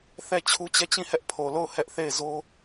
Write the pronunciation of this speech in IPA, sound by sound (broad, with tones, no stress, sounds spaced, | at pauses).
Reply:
θ ɛ˦˨ t͡ɕʰ u˦ t͡ɕ ɛ˦˨ t͡ɕ ĩ˦˨ h ɛ˦ ʔ pʰ o˨ l o˦˨ ʊ̯ h ɛ˦ ʔ θ e˦˨ ɪ̯ z o˦